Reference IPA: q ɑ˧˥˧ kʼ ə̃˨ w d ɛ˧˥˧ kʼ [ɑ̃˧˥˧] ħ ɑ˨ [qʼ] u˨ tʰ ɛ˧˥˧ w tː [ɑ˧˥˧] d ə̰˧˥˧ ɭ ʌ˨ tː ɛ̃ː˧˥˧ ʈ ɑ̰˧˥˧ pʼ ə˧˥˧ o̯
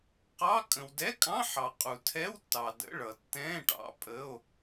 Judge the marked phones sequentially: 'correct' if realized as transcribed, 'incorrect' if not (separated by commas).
correct, correct, incorrect